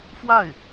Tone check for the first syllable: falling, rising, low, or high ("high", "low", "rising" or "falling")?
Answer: falling